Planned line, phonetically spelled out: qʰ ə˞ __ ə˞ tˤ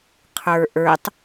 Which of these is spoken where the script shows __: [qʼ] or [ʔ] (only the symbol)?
ʔ